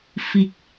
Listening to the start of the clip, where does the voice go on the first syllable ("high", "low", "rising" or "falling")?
low